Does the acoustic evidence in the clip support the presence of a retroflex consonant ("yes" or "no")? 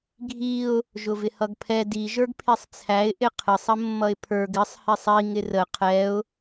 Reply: no